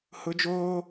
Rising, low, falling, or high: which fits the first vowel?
high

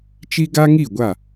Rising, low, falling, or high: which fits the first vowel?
high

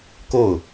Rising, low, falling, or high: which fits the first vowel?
falling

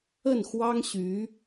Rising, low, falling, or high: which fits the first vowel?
falling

